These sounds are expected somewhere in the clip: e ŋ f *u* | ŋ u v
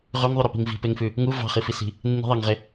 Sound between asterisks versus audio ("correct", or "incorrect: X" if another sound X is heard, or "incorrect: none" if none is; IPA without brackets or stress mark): incorrect: ʉ